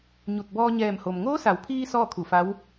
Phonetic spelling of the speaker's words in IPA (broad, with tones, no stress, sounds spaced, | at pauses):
ɲ u˧˩ t̚ b ɔː˧ ɲ ɛː˧˩ m h o˩ m ŋ oː˧˥ s a˩˧ w pʰ iː˧ s ɔː˥˨ kʰ u˧˩ f a˧˥ w